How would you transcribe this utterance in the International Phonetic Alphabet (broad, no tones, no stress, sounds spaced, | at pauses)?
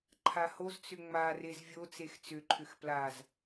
ǃʰ a h o z t͡s ʏ ŋ͡m a r e z vʲ o t͡s e x t͡s ʏ ǃʰ ʏ x p l a z